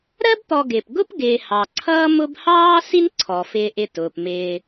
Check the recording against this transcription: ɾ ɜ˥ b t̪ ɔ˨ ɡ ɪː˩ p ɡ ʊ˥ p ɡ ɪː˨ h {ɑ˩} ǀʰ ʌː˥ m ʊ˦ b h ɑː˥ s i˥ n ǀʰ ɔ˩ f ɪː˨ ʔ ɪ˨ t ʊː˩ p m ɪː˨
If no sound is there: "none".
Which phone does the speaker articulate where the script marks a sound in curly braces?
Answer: ɑ˩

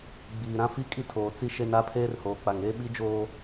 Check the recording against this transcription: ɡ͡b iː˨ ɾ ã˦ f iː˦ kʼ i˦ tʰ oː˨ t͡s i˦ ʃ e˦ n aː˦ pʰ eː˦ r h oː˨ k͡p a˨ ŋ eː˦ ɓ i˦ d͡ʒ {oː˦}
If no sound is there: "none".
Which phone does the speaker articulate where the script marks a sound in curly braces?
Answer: oː˦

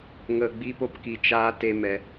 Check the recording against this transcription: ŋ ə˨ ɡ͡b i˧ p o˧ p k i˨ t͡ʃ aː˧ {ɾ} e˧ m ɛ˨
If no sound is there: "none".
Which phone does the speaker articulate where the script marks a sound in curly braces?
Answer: t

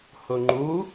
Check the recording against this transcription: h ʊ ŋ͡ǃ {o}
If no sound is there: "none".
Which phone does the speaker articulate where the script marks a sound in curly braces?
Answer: u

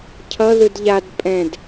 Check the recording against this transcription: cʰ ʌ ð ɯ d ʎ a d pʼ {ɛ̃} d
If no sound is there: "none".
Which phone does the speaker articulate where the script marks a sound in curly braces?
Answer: ɛ̃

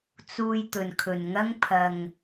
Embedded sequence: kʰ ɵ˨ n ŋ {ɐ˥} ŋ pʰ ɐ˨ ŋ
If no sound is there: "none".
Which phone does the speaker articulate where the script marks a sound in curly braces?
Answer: ɐ˥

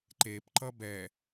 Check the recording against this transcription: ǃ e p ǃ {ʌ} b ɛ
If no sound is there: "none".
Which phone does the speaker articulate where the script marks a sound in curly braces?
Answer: ʌ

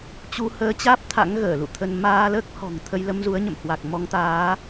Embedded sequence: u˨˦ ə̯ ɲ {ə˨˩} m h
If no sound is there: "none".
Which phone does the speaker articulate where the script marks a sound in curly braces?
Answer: ə̰˧˨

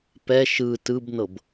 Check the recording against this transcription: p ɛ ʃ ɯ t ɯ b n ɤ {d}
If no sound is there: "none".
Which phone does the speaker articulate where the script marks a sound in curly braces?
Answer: b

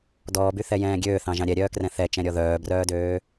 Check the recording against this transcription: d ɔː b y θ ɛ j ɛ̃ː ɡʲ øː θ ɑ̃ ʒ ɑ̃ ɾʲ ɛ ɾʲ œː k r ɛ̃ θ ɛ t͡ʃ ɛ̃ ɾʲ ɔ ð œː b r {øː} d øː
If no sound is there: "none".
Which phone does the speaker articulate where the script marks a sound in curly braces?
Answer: œː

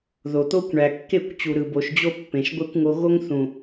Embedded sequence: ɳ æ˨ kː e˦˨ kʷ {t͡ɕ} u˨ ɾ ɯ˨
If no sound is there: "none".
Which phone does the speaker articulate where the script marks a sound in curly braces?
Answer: t͡ɕ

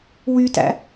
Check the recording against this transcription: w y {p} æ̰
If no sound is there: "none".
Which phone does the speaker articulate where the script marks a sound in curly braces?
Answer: t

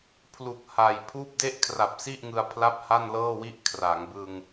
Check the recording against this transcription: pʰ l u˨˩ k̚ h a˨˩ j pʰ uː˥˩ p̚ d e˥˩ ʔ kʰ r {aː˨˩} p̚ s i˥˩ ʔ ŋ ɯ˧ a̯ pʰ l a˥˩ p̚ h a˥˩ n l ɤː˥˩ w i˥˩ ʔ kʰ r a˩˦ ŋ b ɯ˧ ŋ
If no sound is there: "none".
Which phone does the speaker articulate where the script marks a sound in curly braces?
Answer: a˨˩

